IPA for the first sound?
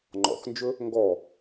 ŋ͡ǃ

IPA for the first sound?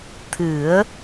t̪ʰ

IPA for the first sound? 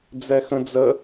d͡z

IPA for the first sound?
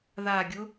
ð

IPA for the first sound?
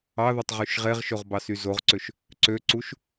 ɑ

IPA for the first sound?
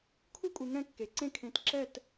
kʰ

